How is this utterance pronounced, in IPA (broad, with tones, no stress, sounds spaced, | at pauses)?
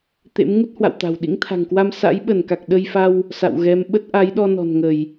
t̪ ḛ˧˥ m ŋ u˦˥ t̚ h w a̰˧˨ w t̪ a̤˨˩ w ɗ ḭ˧˥ ŋ t̪ʰ a̤˨˩ ŋ k w a˧ m s a̰˧˥ j ɓ ə˧˩ n k a˨˩ k̚ ɗ ə˧ j f a˧ w | s a̰˧˨ w ɣ ɛ˨˦ m ɓ ə˦˥ t̚ ʔ a˨˦ j ɗ ɔ˧ n ɔ̤˨˩ n ŋ ə˧˩˨ j